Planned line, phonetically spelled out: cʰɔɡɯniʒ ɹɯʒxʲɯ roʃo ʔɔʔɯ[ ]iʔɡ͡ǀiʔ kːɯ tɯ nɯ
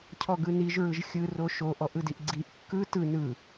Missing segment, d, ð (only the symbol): d